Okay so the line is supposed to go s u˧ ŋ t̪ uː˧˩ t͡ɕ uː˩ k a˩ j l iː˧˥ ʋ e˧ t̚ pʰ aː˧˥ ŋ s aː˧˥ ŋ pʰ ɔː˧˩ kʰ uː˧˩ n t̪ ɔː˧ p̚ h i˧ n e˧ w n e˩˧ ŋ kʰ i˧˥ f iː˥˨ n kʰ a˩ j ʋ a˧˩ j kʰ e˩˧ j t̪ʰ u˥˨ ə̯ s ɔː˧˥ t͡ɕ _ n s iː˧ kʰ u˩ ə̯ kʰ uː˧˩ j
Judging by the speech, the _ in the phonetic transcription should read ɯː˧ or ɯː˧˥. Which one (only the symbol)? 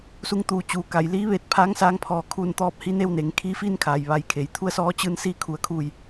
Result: ɯː˧